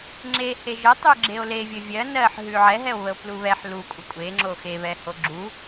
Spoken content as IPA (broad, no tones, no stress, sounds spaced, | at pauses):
ŋ͡ǁ e h e ʒ ə tˤ ʉ ɡ͡ǁ e o̯ l e vʲ ə vʲ ɜ n ɜ ħ ɦ ʉ ʕ ɛ ɦ ɛ o̯ β ə o̯ p l u β ɛ ħ l u kʷʼ ə kʷʼ e ŋ͡ǁ o x e β ɛ h o ɡ͡ǁ u